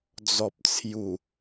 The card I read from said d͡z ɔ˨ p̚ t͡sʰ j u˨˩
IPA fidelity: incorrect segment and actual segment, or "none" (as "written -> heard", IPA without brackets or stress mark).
none